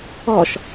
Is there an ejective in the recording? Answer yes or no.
no